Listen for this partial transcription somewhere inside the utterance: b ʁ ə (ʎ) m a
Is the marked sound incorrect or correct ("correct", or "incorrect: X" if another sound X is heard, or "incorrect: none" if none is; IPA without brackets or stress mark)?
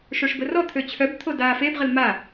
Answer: incorrect: l